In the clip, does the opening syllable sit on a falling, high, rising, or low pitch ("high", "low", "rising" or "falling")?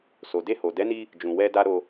low